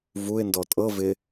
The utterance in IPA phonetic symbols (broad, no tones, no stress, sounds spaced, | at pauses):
v u ɪ̯ n d ɔ tʼ ɤ v ɪ